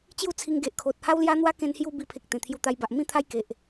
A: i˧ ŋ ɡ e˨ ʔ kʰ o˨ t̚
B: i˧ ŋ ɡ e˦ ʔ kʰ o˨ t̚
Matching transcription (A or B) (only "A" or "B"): A